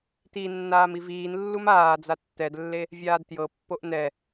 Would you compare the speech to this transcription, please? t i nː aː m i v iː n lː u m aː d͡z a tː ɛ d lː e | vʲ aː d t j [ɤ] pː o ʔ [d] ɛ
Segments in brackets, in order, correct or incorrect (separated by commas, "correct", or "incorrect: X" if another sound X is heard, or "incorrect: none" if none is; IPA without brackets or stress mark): correct, incorrect: n